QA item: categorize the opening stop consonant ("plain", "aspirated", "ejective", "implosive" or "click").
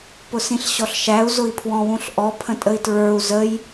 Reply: plain